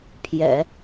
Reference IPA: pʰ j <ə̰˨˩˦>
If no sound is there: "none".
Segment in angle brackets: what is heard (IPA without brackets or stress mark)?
ɛ̰˨˩˦